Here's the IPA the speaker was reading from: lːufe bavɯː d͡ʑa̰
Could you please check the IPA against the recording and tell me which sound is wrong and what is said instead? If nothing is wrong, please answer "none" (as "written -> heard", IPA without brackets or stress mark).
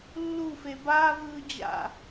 none